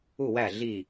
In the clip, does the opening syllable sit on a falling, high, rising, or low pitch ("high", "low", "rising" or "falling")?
falling